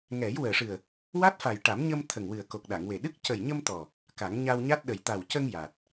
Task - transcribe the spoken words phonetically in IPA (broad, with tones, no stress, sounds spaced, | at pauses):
ŋ ɛ˨˩˦ j w əː˨˩ ʂ ɨ˨˩ ə̯ | w a˦˥ t̚ f a˨˩ j ʈ a˨˩˦ m ɲ ə˧ m t̪ʰ ə˨˩ ŋ w ɨ˨˩ ə̯ k o˨˩ k̚ ɗ a˨˩˨ ŋ w e˨˩ ɗ ɨ˦˥ k̚ c ə˨˩ j ɲ ə˧ m t̪ ɔ˨˩ | k a˨˩˦ ŋ ɲ a˧ w ɲ a˦˥ t̚ ɗ ə˨˩ j t̪ a˨˩ w c ə˧ ŋ j a˨˩ t̚